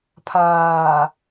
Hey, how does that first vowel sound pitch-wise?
low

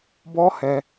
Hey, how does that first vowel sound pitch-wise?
high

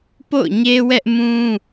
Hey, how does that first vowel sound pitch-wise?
falling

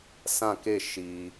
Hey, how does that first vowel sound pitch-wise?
falling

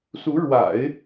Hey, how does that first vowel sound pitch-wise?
rising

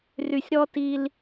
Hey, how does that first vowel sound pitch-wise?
low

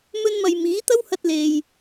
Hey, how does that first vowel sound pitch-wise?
high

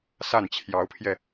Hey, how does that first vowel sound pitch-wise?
falling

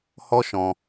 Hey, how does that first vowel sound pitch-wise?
high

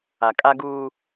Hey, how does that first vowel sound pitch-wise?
low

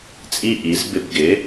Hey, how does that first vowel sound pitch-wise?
high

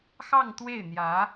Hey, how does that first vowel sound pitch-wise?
falling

